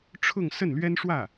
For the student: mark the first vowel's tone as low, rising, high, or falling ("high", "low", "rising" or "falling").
falling